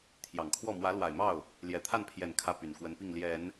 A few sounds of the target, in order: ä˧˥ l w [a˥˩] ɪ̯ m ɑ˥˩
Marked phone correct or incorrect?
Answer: incorrect